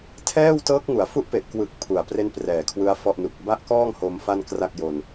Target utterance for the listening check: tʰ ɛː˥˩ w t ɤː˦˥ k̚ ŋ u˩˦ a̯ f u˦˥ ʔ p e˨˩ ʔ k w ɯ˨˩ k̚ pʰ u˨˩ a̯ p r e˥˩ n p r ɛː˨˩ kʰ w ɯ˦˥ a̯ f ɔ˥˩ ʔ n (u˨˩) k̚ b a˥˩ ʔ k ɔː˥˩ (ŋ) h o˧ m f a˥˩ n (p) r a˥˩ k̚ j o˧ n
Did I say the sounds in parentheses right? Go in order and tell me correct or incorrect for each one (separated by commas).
correct, correct, incorrect